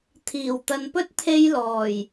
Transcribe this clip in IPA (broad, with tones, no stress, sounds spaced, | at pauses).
t̪ʰ iː˨˩ w t̪ ɐ˨ n p ɵ˥ t̚ t̪ʰ e˧ j l ɔː˨˩ j